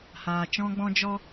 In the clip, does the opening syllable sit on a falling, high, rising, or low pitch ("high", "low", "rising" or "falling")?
low